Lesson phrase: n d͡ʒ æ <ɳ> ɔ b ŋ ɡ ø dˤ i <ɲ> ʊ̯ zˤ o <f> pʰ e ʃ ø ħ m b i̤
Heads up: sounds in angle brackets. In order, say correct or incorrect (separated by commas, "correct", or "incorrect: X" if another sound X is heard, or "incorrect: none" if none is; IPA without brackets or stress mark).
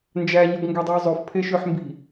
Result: incorrect: ɲ, incorrect: none, correct